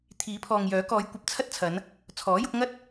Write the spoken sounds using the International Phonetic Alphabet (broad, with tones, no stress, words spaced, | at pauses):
t̪ʰiː˨˥pʰɔː˨ŋjœː˨˥kɔː˨˧j kʷɐ˧p̚t͡sʰɐ˥t̚t͡sʰɐ˨˧n | t͡sʰɔː˨˥jʊ˨˥k̚ŋɐ˥t̚